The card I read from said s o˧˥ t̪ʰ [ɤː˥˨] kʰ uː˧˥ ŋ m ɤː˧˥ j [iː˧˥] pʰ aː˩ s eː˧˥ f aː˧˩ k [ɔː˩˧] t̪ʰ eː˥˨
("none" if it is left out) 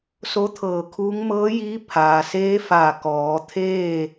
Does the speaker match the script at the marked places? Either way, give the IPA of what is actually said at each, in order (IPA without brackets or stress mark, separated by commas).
ɤː˧˩, iː˧˥, ɔː˩˧